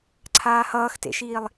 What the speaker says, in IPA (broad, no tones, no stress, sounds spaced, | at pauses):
ǀʰ aː h ʌː x t ḛ ʃ iː lˠ